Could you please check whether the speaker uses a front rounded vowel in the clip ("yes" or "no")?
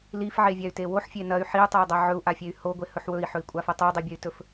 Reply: yes